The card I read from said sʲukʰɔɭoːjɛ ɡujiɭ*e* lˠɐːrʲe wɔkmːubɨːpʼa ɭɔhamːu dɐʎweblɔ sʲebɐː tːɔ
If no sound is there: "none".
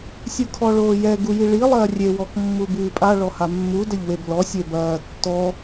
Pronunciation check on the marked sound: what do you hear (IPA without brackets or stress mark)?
i